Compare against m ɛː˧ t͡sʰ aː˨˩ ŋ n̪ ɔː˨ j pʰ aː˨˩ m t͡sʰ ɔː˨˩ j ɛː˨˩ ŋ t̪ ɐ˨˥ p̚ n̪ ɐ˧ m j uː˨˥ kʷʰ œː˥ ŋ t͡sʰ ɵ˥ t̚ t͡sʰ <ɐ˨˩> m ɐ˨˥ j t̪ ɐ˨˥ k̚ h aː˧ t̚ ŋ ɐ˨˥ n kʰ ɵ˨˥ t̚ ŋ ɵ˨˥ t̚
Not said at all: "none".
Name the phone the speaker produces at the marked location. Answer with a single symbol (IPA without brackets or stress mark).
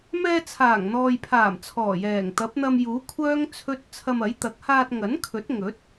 ɐ˧